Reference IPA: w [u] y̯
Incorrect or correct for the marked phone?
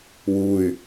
correct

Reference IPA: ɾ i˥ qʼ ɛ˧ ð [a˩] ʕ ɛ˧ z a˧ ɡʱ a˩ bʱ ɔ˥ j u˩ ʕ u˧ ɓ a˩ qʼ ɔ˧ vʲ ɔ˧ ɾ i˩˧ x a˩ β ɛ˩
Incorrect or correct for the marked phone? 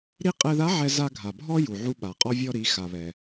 incorrect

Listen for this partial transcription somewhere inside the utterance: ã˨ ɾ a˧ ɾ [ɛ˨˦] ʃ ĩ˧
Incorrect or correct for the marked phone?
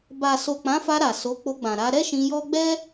incorrect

